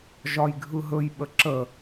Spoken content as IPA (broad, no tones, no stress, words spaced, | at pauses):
ʒɒjɡʱɯɦɵj ɓəǁə